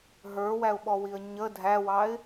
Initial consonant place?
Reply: glottal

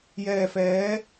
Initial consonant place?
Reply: palatal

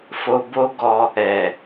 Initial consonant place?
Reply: labial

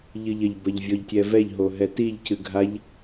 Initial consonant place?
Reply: palatal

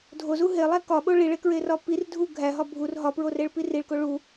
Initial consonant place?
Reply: alveolar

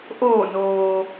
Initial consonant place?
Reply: glottal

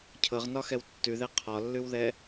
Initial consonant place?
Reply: palatal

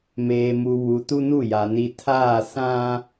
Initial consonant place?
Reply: labial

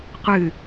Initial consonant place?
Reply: uvular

